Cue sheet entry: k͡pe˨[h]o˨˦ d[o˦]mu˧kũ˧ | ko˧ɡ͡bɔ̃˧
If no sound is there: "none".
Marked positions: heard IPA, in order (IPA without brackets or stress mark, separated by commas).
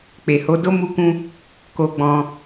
h, o˦